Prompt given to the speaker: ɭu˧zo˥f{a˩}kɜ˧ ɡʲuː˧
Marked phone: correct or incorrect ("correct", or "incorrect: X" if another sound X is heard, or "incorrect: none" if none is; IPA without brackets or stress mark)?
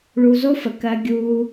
incorrect: ə˩